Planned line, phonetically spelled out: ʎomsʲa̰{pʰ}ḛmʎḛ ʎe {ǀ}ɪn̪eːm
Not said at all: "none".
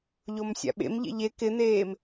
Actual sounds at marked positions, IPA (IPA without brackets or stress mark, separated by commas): ɓ, k